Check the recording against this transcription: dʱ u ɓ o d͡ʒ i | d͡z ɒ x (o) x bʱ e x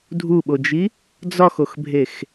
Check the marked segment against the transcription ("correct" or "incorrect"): correct